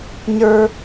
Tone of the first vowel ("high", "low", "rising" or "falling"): high